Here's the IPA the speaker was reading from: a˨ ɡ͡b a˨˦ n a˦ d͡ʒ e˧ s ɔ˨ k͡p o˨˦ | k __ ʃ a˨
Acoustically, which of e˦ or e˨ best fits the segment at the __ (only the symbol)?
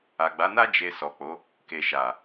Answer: e˨